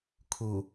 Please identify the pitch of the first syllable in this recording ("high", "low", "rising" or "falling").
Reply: low